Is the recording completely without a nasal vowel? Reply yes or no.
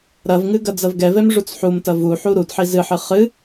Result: yes